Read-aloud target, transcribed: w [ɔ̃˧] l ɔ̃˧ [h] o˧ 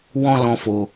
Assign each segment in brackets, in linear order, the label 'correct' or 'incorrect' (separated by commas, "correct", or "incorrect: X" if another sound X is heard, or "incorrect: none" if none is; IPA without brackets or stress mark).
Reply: correct, incorrect: f